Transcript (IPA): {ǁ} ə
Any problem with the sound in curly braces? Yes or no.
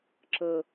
no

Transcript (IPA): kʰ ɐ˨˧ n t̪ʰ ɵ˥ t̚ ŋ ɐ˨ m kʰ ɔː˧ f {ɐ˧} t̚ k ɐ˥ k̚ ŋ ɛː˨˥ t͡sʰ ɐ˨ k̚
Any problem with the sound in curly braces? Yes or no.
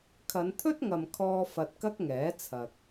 no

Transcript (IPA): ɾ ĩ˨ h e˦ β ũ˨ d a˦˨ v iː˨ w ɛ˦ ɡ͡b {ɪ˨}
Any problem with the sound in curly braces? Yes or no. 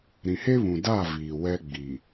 yes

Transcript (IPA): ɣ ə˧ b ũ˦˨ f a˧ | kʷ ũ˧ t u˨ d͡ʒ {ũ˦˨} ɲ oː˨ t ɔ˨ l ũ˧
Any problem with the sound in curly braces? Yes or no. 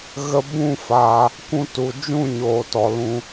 no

